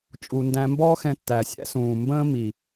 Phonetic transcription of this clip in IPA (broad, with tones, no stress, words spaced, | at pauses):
t͡ʃʼu˨ndæ̃˧ mbɔː˦xɛ̃˧tːæ˨ sʲæ̰˦sũː˨ mbə̃ː˦mi˨